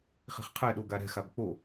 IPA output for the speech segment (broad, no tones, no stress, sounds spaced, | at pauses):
χ i̤ χ qʰ ɛ ɗ o ɡ a ɾ ɛ̤ x a b k͡p o